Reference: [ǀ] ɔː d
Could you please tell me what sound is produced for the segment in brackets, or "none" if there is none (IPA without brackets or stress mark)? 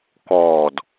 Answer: k